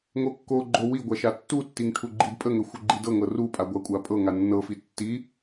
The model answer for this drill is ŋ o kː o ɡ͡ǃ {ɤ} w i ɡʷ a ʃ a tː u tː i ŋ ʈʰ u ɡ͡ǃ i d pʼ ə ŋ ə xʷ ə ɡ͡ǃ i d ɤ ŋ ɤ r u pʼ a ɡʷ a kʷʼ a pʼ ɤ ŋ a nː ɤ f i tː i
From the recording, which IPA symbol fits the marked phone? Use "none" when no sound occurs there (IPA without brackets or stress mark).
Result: o